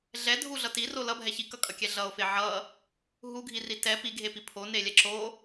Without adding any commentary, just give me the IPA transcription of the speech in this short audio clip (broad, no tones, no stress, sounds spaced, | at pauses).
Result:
ɮ ɛ dʱ u ɮ ʌ t i r o l ʌ bʱ ɛ ç i k ʌ kʼ ʌ kʲ ɛ ɮ ʌ o̯ f e ʕ ʌ | ɦ u ɡʱ i r i t ɛ p i ɡʱ e p i pʰ o n e lʲ ɛ ǁ o